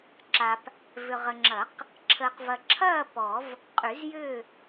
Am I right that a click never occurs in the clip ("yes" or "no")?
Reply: no